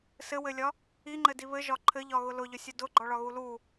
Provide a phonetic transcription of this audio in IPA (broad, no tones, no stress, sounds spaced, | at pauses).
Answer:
s ɘ w ɘ lʲ ɒ | i ŋ͡ǃ ɘ d i β ɘ ʒ ɒ ǃʰ ɘ ʎ ɒ ɣ ʊ l ʊ ʎ ʊ sʲ ʊ d ʊ ɡ͡ǃ ɒ ɭ ɒ ɣ u l u